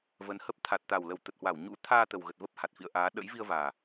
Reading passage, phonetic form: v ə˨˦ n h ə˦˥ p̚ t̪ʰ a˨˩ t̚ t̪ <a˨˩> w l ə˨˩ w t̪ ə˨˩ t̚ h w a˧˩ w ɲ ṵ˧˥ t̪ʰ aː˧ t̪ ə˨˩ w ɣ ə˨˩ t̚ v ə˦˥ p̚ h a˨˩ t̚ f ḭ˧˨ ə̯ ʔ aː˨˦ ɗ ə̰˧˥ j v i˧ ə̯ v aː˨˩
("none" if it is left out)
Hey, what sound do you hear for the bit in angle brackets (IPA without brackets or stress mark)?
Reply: a˨˩